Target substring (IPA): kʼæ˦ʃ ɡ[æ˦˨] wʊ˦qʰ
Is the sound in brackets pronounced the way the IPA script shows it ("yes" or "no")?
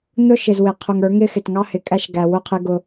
no